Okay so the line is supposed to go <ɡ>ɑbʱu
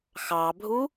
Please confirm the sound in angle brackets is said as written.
no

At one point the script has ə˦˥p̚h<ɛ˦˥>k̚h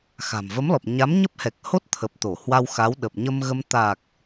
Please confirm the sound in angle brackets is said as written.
no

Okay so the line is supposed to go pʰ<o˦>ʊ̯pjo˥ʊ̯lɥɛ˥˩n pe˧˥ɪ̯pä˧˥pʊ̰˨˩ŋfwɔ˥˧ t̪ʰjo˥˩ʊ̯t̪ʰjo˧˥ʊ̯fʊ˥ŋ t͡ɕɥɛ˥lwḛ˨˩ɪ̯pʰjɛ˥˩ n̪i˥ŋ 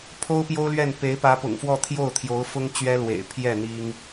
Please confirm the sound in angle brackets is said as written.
no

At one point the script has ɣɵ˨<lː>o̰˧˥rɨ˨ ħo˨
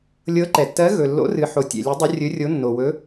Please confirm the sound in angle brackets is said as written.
yes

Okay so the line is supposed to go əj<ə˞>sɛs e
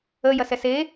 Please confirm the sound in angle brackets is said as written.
no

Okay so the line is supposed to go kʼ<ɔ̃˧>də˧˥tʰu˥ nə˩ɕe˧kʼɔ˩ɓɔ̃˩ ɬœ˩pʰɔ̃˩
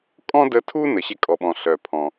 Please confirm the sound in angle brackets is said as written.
no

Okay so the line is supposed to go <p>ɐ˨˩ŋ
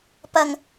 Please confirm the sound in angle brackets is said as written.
yes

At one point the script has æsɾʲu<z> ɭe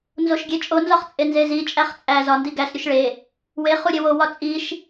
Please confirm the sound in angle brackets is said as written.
no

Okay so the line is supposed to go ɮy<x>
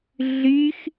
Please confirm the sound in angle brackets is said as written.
yes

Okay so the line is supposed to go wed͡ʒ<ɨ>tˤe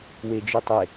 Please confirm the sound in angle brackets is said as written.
yes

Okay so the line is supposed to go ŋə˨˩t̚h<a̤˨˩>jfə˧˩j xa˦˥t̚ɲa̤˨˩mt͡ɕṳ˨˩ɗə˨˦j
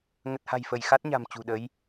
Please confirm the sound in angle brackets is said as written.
yes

